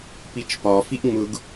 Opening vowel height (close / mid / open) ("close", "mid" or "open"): close